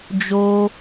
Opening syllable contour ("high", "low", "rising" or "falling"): high